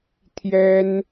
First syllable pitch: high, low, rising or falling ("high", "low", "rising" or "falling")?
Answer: high